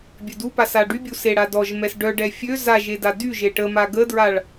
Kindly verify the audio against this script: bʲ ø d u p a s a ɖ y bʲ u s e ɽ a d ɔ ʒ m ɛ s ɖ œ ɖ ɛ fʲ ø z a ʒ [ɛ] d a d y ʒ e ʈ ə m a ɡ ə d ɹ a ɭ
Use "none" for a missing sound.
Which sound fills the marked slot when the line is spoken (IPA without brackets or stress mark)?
e